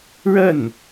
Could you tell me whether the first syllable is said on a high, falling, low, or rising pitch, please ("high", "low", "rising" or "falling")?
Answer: falling